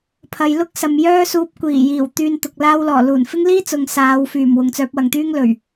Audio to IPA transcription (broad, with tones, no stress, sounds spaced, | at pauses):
pʰ ɐ˨ j l ʊ˥ k̚ s ɐ˨ m j œː˥ s uː˧ p̚ kʷ iː˨˩ j iː˨˩ w t̪ yː˧ n t̪ ʊ˨ k̚ l aː˧ w l ɔː˨˩ l uː˨˩ n f ɪ˥ ŋ l iː˥ t͡s ʊ˨ ŋ s aː˨˧ w f yː˨˩ m w ʊ˨ ŋ t͡s œː˨˥ p̚ w ɐ˨ ŋ t̪ yː˥ ŋ l ɵ˨˩ ɥ